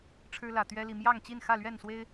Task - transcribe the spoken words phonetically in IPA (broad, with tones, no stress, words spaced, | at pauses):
ʈ͡ʂʰɻ̩˦lä˨˩ t̪ɥɛ˦li˨ mjɑ˥˨ŋt͡ɕi˥˨n xä˥˨lɥɛ˥˨nswe˦ɪ̯